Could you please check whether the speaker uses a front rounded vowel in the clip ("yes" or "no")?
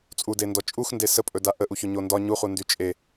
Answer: yes